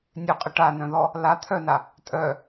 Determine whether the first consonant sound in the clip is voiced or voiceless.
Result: voiced